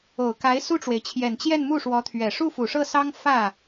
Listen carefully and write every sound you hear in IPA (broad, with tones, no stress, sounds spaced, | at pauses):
o˨˩ ʊ̯ k a˧˥ ɪ̯ s u˥˩ ʈ͡ʂ w e˩ ɪ̯ t͡ɕʰ j ɛ˨˩ n t͡ɕ j ɛ˥˧ n m u˥˩ ʂ w ɔ˧˥ t̪ʰ ɥ ɛ˨˩ ʂ u˥˩ f u˨˩ ʂ ɤ˥˩ s ɑ˥ ŋ f ä˥˩